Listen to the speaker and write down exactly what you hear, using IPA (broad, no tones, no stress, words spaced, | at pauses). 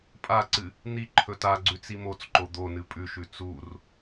pʼaǀɨ | n̪i ǃʰɵtaɡ͡ǀʉ t͡simot͡sǃo d̪onɨ pʼʉʃʉ t͡sur